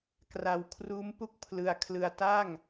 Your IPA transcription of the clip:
k r a˧ w kʰ r uː˦˥ m p u˥˩ k̚ pʰ l ɯ˧ a̯ kʰ l ɯ˧ a̯ t aː˥˩ ŋ

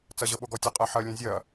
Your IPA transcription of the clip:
t͡s ɐ ʑ ɤ ɓ o ɡ ɔ tʲ o qʼ ɛ ħ ɐ lʲ ɛ̃ zʲ ɐ

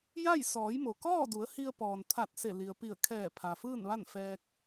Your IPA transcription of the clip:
j a˥˨ j s ɔː˩˧ j m o˩ k ɔː˥˨ d u˩˧ ə̯ h i˧ ə̯ p ɔː˩ n t̪ʰ a˧˩ t̚ s e˧˩ l i˩ ə̯ p i˧˩ ə̯ kʰ ɛː˧˩ pʰ a˩ f ɯː˥˨ n ʋ a˥˨ n f ɛː˧ k̚

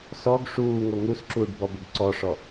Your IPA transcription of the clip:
s ɔ ɡ ʂ uː ŋ o ŋ u s ǁ uː ɖ b ɔ b ə ɡ ǀ ɔ ʂ ɔ

